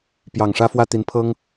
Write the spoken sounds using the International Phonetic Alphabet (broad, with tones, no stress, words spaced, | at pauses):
pjɑ˨˩ŋʂä˥˧fwä˥˩ t̪i˧˥npʰɤ˥ŋ